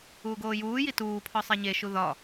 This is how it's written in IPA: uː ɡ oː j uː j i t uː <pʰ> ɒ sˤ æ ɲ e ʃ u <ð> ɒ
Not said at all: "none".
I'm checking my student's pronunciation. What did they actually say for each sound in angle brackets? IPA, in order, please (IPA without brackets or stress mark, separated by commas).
pʰ, ð